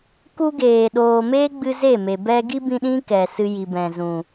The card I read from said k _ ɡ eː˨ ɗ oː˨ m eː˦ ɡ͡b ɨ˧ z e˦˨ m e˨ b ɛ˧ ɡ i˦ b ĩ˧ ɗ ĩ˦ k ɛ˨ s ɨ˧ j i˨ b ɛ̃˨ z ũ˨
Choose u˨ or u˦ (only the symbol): u˦